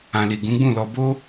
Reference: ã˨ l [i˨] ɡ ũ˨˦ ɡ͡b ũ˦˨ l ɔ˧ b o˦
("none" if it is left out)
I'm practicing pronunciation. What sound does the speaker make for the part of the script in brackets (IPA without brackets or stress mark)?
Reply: i˨